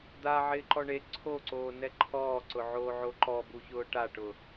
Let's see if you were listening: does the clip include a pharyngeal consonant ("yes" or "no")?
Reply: yes